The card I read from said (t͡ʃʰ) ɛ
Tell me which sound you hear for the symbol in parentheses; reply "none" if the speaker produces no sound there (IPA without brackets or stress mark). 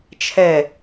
t͡ʃʰ